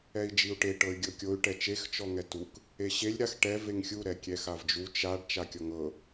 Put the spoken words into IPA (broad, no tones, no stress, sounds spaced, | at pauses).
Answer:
ɛ i̯ d͡ʒ i u̯ ʈ e ʈ ɤ y̯ ɡʲ ɤ kʲ o y̯ ʈ ɛ t͡ʃ e x t͡ʃ ɔ ŋ ɛ t u k | e ɕ e lʲ ɾ a x ʈ ɛ v e ŋ xʲ u ɾ ɛ kʲ ɛ x a v d͡ʒ u t͡ʃ a ɖ t͡ʃ a kʲ ɔ ŋ ɤ